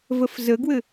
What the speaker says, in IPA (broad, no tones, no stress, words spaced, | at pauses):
vəfzəɡwɘ